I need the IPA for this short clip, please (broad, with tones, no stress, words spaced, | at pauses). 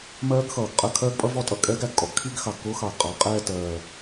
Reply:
mɜː˦˥ɡxʌː˨˩ɡqʼə˥˩ kʰɜː˦˥ɡpʼʌ˦˥vɔ˥˩tʼʌ˥˩ kʼɛː˦˥ɡæ˨˩ɡkʼɔ˨˩ɡ kʰi˥˧ɡxɑ˨˩ɡ kʊː˦˥xɑ˨˩ɡqʼɑ˨˩ qʼɛː˥˧tɜː˨˩